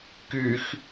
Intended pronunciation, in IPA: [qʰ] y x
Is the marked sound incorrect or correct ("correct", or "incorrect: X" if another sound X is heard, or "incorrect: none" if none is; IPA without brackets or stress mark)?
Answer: incorrect: k